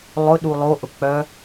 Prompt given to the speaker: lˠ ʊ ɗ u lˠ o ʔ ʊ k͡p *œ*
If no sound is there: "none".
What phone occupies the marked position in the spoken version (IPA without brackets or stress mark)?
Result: œ